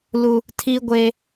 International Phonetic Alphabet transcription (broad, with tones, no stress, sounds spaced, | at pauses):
l u˦ | tʰ iː˦ ɡʷ eː˦